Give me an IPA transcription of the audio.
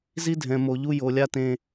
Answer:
z i˦ dʱ ɛ̃˨ m o˨ ʎ u˦ j o˨ lʲ a˦ t ẽ˦

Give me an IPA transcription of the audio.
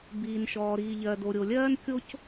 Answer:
b iː˩ n ʃ ɔː˩ ɾ iː˩ ʎ ɜ˩ d o˩ ɾʲ o˩ lʲ ɜː˥ n kʲ o˥ c

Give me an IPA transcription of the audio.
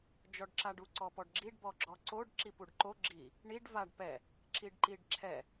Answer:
d͡ʒ ɔ ɖ ǁ a ɖ u ǀ ɔ p ɔ ɖ ɡ͡ǁ i ɖ b ɔ ɡ͡ǁ ɔ ǀ o ɖ ǁ i p u ɖ ǃ o ɡ͡ǁ i | ɳ i ɖ v a ɖ p ɛ | ǁ i ɖ ǃ i ɖ ǁʰ ɛ

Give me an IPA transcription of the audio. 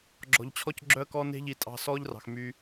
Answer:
ɡ͡ǁ ɔ̤˨ ʎ t͡ɕʰ ɔ˧ c ɡ͡ǁ œ˧ ə̯ k ɔ˧ n e̤˧ ʎ i˨ tʼ ɑ̤˨ s ɔː˦ ʎ r ɑ̤˨ x m y˧

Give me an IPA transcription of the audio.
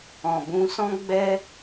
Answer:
ɔ̃˨ b ũ˧ s ɔ̃˦ ɡ͡b ɛ˦

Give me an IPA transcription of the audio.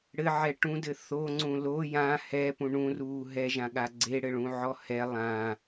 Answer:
ɽ ɘ ʕ ɛ ʈ ũ d ɘ θ o ŋ͡ǀ ũ l o j ã h ɛ p ũ ɳ ũ r uː ɦ ɛ ʒ ã ɠ a ɡ͡ǀ e ɽ ɘ ɭ ũ ʕ ɔ h ɛ lˠ ã

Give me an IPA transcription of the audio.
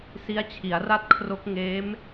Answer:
s i˦˥ a̯ t͡ɕʰ i˩˦ a̯ r a˥˩ t̚ kʰ r o˦˥ k̚ ŋ eː˦˥ m

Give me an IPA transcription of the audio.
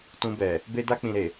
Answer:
t ũ˧ b ɛ˨ | b e˧ d a˧ k͡p ĩ˨ ɾ e˨

